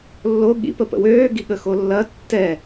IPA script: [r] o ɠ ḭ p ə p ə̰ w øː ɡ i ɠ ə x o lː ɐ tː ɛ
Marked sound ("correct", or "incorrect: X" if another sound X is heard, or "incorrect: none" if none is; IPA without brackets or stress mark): incorrect: lː